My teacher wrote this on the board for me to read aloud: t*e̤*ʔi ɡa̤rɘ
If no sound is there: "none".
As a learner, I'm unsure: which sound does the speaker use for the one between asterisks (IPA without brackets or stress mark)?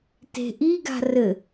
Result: e̤